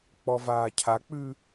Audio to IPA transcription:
k͡p ɔ v aː cʰ a k͡p ʉː

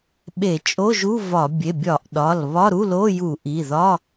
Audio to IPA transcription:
ɓ e˧˩˧ t͡ʃʼ o˧˥˧ ʒ u˧˥˧ v ɒ˧˩˧ bʲ e˩˧˩ bʲ ɒ˧˩˧ ʔ ɗ ɒ˩˧˩ l β ɒ˧˥˧ ɾ u˧˥˧ l o˧˥˧ j u˧˩˧ ʔ i˩˧˩ ð ɒ˧˥˧

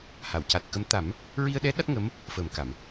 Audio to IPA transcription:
h a˨˩˨ w c a˨˩ t̚ k ə˧˥ m t̪ a˨˩˦ m | ɹ i˧ ə̯ ɗ ɛ˧˥ ɗ a˦˥ t̚ ŋ ə˧˥ m | f əː˨˩ m k a˨˩˨ m

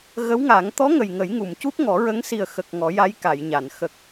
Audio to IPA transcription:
ɣ ə˧˥ w ŋ a˨˩˦ ŋ t̪ ɔ˧˥ ŋ ə˨˩ j ŋ ə˨˩˦ j ŋ u˨˩˨ m c u˦˥ p̚ ŋ ɔ˨˩˦ ɹ ə˧˥ ŋ s i˨˩ ə̯ x ə˨˩ k̚ ŋ ɔ˨˩˦ j a˧˥ j k a˨˩˨ j ɲ a˨˩˨ n x ə˨˩ k̚

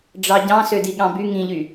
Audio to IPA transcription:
ɖ͡ʐ ɑ ɟ ɑ̃ s ø d i ɠ ɑ̃ b y ŋ ĩ ʎ y

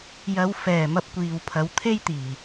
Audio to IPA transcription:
j ɐ˨˧ w f ɛː˨˩ m ɐ˧ p̚ kʷ iː˨ w pʰ ɐ˨˧ w t̪ʰ e˥ j t̪ iː˨˩

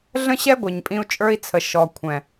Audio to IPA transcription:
ɮ ə̃˦ ɕ ɛ˦ ɡʷ ɛ˨ ɲ pʼ ĩ˧ u̯ t͡ʃʼ ə˞˦ i̯ t͡sʰ ə˨ ʃ ɔ˨ kʷʰ ɛ̃˨

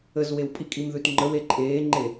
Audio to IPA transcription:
ə z w e w pʼ i kʼ i m ð ʉ t ŋ͡ǃ ə w e ǃʼ eː ŋ͡ǃ e

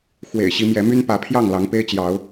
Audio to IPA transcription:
x w ḛ˨˩ ɪ̯ ɕ i˨˦ m j ɛ˨˦ m y˦ n p ä˨˦ pʰ j ɑ˥˨ ŋ l ɑ˨˦ ŋ p e˦ ɪ̯ t͡ɕ j ɑ˨˦ ʊ̯

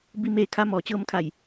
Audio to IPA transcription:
b i˧˥ m eː˧˥ kʰ a˧˥ m ɔː˩ t͡ɕ ɤː˧˥ m kʰ a˧˩ j

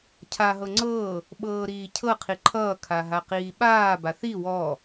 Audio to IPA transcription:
cʰ a ɦ ɤ ŋ͡ǀ ɤː | ɓ ɤː ɾ iː cʰ ɤ qʰ i ǃʰ ʌː kʰ a ɦ a q iː ɓ aː b a θ i w ɔ

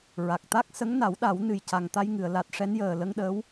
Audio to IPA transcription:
ɹ a˨˩ k̚ t̪ a˦˥ k̚ s ə˧˥ ŋ n a˨˩˦ w ɗ a˨˩˦ w n ɨ˨˩ j c a˨˩ ŋ t̪ a˧ j ŋ ɨ˨˩˨ ə̯ l a˨˩ t̚ ʂ ɛ˧˥ n j əː˨˩ l ə˧ ŋ ɗ əː˧˥ w

